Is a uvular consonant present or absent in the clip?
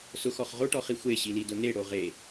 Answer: present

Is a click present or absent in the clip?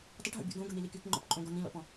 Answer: present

